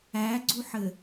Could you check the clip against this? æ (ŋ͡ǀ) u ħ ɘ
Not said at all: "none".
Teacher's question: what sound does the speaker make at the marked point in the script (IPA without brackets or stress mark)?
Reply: ɡ͡ǀ